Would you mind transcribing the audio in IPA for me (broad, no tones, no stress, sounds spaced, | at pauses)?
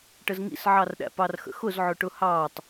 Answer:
ʈ ə z ŋ ḭ s ʕ ɑ r ɗ æ̰ p ɑ r x ə̰ x ʊ z ʕ ʊ ʈ ʊ h ɑː tˤ